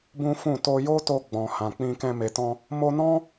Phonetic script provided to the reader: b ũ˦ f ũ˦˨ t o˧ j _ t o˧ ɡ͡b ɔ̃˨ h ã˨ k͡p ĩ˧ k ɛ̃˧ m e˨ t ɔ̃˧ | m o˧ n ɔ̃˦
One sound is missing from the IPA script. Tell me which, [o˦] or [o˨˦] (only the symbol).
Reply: o˦